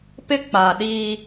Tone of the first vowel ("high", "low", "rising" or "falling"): high